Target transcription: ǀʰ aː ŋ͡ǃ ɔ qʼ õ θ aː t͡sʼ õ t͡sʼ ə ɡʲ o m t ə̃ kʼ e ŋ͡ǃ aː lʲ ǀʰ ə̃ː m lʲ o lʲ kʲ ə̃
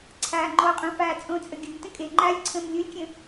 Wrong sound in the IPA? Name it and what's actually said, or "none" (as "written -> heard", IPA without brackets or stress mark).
θ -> f